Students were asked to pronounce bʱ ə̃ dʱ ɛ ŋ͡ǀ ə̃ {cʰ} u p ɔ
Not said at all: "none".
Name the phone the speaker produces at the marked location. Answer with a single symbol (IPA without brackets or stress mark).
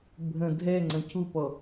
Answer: cʰ